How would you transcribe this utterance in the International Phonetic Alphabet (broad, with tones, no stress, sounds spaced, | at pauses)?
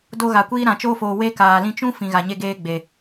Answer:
d o˧ ɣ a˨ kʷ iː˧ ɾ ã˨ t͡ʃ oː˧ f oː˨ w e˧ k aː˨ l ĩ˧ t͡ʃ ũ˦ f ĩ˨ ɣ a˨ ɲ e˧ ɡ eː˧ ɡ͡b e˨